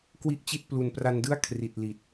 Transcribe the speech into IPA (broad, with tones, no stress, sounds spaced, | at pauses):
k w i˥˩ ʔ t͡ɕ i˥˩ t̚ p l u˨˩ n p r a˧ n d ɯ˥˩ a̯ kʰ r i˨˩ t̚ l i˨˩ t̚